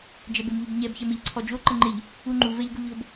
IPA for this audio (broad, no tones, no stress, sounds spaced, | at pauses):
d͡ʒ ɛ b e m ʎ u b ɲ ɛ b ç ɛ m e ʎ ǀʰ ɔ d͡ʒ o ǃ ə ŋ͡ǃ ɪ ʎ | u ŋ͡ǃ u v ɛ ʎ ɡ u ʎ o b